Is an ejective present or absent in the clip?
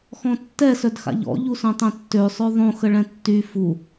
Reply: absent